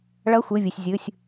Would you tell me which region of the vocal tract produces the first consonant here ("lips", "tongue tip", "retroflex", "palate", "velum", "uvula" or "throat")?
retroflex